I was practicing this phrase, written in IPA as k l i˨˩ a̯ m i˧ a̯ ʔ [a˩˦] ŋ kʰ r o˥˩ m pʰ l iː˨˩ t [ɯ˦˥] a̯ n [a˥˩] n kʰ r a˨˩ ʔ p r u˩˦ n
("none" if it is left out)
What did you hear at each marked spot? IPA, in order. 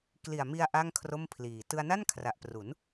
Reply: a˥˩, ɯ˧, a˥˩

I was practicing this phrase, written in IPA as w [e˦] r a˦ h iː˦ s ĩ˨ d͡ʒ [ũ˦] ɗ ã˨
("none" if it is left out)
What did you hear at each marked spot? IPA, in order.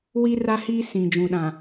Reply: i˦, ũ˨

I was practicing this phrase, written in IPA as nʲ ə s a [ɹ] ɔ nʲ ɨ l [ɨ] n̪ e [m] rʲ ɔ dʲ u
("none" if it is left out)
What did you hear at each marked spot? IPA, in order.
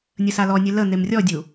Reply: l, ə, m

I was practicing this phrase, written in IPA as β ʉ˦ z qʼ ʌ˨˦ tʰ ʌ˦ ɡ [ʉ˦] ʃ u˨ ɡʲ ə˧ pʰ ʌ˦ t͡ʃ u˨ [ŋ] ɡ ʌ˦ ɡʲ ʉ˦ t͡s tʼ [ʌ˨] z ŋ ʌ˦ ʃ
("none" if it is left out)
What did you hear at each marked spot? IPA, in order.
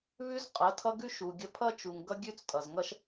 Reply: ʉ˦, ŋ, ʌ˨

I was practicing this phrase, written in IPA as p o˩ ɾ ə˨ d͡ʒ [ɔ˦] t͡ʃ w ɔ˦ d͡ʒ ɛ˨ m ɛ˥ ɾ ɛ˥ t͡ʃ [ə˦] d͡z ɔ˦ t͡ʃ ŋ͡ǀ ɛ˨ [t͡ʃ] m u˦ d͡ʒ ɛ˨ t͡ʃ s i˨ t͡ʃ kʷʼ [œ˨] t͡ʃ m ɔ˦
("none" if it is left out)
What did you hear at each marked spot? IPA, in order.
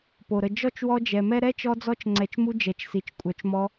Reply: ɔ˥, ɔ˦, t͡ʃ, œ˨

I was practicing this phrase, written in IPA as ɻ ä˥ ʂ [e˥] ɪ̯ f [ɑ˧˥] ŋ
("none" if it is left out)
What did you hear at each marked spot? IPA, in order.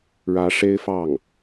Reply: e˥, ɑ˥˩

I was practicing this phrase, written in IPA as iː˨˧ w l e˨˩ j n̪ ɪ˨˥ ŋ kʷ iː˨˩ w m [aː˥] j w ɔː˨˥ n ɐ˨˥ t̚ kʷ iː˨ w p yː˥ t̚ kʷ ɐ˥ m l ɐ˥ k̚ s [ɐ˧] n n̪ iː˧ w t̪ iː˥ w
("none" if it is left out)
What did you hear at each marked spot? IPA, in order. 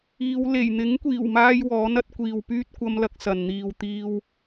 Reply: aː˥, ɐ˨

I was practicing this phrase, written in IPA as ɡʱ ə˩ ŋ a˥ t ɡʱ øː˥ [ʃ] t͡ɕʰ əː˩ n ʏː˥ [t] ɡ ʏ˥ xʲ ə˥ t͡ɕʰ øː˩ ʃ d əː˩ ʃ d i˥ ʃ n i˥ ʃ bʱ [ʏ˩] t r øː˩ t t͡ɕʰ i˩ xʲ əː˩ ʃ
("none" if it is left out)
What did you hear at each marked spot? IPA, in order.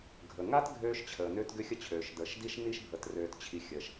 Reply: ʃ, t, ə˩

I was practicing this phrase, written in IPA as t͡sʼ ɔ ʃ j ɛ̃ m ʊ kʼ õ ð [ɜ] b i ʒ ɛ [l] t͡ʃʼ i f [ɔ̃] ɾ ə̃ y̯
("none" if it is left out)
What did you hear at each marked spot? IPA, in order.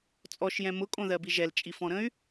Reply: ɜ, l, ɔ̃

